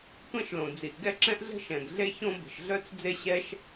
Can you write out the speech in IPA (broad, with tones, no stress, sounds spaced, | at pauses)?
tʷ ɛ̃˥ ʃ l õ˩ d͡z i˩ ʔ ɡ ɛ˥ ǁ ɛ̃˥ ʔ ɮ ə̤˥ ʃ ɛ̃˩ ɡ ɮ e˥ ç õ˥ b ə̤˩ ʃ ɮ œ˥ t͡s d͡z e˥ ɕ ɛ˥ ʃ